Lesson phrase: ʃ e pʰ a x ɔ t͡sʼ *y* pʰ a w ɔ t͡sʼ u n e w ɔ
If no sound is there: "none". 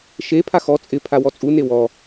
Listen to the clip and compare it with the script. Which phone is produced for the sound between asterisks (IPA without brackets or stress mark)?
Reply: ɪ